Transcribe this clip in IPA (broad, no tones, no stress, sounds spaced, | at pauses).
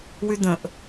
w y d̪ ə̃ ʔ